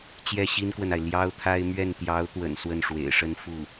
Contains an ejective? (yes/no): no